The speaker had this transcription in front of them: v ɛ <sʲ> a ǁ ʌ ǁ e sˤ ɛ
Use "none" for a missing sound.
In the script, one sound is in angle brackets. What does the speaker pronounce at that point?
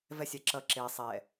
sʲ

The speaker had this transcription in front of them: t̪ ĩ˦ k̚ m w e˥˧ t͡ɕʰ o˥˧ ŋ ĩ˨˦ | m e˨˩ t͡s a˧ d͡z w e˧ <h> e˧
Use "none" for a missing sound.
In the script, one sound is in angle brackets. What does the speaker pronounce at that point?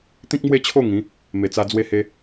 h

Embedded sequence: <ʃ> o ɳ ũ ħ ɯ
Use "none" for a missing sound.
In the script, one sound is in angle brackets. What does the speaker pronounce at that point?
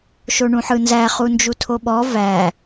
ʃ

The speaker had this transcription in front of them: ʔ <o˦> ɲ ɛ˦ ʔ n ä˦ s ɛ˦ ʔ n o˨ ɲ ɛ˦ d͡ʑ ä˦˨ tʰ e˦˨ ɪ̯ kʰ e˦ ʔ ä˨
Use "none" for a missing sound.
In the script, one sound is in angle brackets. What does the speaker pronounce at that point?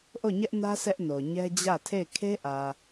o˦˨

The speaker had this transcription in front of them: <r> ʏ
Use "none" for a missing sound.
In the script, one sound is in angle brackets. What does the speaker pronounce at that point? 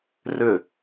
r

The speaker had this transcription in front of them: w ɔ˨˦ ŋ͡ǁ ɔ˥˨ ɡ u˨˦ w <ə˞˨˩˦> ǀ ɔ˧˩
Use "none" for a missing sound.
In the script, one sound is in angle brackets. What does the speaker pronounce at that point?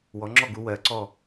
ɜ˨˩˦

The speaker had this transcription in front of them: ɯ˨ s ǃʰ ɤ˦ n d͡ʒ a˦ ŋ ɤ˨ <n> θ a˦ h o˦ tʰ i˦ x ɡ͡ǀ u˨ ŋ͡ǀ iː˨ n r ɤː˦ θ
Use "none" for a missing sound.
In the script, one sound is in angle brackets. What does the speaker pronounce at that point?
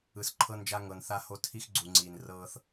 n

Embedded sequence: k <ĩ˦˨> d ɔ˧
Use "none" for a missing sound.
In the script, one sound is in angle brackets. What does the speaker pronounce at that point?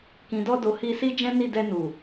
ĩ˨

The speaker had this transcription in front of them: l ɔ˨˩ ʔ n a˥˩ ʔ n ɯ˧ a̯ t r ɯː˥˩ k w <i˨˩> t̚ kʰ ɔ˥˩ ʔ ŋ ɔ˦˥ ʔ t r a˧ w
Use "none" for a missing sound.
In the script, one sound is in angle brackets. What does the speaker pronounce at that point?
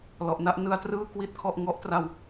i˥˩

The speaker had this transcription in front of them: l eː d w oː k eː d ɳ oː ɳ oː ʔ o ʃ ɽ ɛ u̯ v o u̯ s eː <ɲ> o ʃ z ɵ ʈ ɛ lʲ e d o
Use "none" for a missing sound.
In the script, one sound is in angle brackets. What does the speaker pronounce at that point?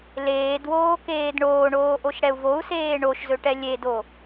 ɳ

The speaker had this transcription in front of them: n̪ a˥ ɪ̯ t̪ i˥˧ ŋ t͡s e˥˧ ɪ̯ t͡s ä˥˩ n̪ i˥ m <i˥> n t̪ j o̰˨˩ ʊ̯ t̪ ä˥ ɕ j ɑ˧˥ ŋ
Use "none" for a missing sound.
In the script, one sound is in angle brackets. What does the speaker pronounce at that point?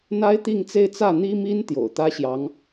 i˥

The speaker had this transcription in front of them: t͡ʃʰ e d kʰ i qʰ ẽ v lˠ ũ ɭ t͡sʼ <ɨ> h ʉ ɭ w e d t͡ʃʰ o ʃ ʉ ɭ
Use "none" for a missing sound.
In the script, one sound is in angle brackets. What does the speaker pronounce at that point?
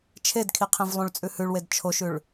ʉ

